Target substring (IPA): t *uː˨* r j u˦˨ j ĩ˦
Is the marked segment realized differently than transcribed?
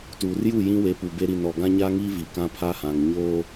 no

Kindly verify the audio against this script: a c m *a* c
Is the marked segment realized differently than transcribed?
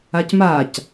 no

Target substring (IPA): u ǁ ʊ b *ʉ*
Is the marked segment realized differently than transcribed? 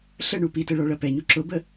yes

